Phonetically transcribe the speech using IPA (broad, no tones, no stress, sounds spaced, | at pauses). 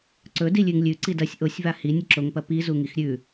ǀ ɵ d i lʲ ʉ ŋ lʲ ʉ ǀ i d ɐ sʲ ʔ o sʲ v a h i nʲ ɐ ǁ o ŋ p ɐ p i z u ŋ i x ɾʲ ʉ